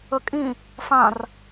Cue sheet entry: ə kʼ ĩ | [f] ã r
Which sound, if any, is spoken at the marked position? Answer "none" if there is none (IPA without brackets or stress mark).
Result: f